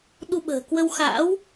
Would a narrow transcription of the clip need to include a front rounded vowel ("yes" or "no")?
no